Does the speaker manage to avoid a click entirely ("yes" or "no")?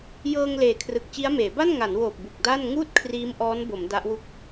yes